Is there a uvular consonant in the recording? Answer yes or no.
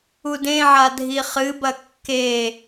yes